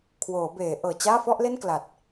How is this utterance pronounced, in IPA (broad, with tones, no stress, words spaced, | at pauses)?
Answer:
kʰwoː˩˦beː˩˦ʔɤː˨˩t͡ɕaː˥˩ fɔ˥˩ʔle˥˩nkla˨˩t̚